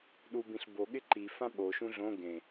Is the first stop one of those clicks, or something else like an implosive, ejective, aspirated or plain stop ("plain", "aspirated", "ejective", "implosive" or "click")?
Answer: implosive